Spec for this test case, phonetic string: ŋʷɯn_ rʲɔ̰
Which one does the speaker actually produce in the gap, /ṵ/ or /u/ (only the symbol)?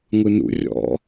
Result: ṵ